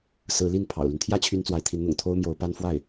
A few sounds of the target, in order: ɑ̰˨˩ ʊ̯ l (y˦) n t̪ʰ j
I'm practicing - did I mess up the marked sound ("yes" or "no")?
no